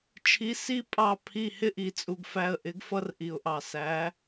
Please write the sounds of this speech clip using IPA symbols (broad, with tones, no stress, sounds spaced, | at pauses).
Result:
t͡ʃʰ i˨˥ s i˦ pʼ ɑ˧˩ pʰ i˧˩ h ɪ˦ ʔ i˩ t͡sʼ u˩ ɡ f æ˧˩ ə̯ ʔ ɪ˨˥ ɡ f ʌ˦ r ʔ i˩ ʊ̯ ʔ ɑ˩ s æ˨˥